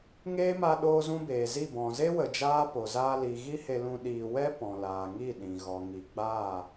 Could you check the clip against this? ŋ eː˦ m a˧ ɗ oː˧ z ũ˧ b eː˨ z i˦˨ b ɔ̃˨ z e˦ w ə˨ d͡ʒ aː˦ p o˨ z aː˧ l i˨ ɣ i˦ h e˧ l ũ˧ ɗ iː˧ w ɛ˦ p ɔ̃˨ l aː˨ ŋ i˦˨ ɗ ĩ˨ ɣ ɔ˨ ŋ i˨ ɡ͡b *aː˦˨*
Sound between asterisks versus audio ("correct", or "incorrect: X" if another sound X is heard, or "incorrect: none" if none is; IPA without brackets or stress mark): correct